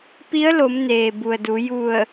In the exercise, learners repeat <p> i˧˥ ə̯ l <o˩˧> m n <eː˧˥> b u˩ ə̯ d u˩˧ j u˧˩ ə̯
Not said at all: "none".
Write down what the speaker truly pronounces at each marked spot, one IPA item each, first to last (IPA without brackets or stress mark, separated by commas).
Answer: p, o˩˧, eː˩